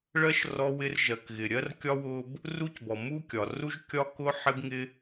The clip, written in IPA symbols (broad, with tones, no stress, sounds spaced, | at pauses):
ɭ ɜ˥ ʃ r ɔ˥ w ɪ˥ r ʒ ɜ˩ k ɣ ɪ˩ ɾʲ ɜ˥ r kʲ ɒ˥ w ʊ˥ b | r u˥ c b ɔ˩ m u˥ kʲ ɒ˩ r u˥ ʒ kʲ ɒ˥ k ʊ˥ ħ ɪ˥ b ŋ ɪ˥